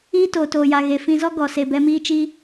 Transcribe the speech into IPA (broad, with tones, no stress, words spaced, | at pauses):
iː˦toː˨toː˨ja˨ ɣe˨fĩ˧ zɔ˦ɡɔ˨ se˨bɛ˧miː˦t͡ʃiː˦